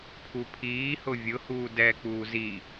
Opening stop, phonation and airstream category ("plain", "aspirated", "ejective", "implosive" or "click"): aspirated